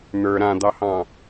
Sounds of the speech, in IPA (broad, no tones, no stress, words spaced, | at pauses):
n̪ə˞ ɾãd̪ɑhɑ̃